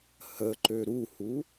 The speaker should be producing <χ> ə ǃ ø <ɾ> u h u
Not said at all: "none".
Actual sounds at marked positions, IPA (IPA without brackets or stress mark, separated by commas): h, ɾ